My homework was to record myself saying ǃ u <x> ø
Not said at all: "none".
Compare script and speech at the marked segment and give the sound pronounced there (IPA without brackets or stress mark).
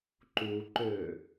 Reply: ǃ